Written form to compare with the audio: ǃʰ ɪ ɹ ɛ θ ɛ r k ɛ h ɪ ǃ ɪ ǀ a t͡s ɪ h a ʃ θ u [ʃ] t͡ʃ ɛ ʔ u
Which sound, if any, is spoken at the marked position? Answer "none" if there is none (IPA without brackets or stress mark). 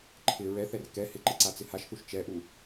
ʃ